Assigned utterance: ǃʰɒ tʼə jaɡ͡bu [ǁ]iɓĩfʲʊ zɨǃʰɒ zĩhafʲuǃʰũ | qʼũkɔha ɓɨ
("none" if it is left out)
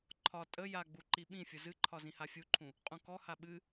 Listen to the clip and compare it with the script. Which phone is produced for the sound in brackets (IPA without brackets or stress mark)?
ǃ